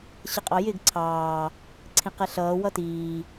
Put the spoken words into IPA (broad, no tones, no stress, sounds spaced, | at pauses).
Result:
ɕ ə qʼ ɑ j ɪ ɡ ǀʰ ɑː | ǀʰ ĩ q ɛ ɬ ʌː w ʌ t iː